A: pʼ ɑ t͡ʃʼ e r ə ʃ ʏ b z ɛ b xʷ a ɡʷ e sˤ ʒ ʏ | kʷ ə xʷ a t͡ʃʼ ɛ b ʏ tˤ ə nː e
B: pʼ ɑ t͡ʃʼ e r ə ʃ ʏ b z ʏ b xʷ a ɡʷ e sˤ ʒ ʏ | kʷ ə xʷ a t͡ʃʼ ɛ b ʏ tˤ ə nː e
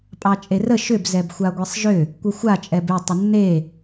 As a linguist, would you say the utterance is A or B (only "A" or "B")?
A